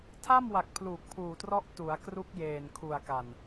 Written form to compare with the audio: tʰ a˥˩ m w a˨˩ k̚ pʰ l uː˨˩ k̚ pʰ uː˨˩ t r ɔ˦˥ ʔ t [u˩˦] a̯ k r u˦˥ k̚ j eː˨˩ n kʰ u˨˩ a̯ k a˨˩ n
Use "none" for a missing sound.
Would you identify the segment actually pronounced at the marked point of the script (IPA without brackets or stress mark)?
u˩˦